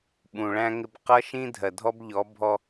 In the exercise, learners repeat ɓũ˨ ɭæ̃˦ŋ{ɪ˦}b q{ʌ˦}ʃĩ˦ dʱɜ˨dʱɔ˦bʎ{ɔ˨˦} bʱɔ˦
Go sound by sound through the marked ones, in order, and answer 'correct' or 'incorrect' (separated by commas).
correct, correct, correct